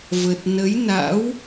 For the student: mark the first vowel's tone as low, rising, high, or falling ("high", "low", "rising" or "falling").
low